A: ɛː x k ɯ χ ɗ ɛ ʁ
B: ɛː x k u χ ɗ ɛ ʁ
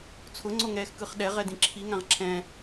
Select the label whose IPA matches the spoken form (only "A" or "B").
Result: A